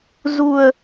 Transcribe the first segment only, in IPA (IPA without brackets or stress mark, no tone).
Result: z